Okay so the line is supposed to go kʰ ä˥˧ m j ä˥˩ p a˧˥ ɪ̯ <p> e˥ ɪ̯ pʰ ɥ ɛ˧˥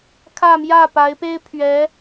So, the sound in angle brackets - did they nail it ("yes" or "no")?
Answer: yes